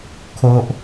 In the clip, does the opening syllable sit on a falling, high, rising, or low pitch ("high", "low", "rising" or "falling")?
high